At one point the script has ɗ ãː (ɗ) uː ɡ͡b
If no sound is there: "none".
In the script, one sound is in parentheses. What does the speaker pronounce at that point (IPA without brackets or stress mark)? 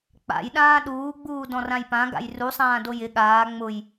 ɗ